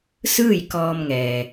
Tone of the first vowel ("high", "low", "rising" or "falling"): falling